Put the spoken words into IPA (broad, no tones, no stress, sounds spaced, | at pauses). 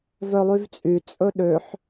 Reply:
v œ lˠ y v t͡sʼ y t͡sʼ ɵ ɗ ø ħ